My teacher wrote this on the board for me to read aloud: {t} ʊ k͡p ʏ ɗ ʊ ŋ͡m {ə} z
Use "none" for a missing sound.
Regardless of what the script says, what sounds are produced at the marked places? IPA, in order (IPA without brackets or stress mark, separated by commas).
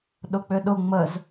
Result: ɗ, ə